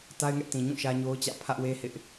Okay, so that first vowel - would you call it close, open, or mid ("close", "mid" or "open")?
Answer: open